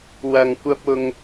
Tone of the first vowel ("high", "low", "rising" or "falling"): low